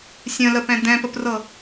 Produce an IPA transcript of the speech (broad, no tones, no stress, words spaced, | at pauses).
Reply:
sʲə̃ləpɛ̃ d̪ɛ̃pəprɤ